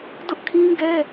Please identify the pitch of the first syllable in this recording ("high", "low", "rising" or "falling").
high